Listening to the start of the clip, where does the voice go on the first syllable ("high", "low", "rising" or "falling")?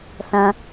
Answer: high